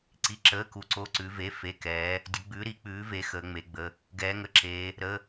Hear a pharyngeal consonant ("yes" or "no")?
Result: no